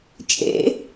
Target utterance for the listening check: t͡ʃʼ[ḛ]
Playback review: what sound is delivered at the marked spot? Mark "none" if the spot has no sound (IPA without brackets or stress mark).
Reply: ḛ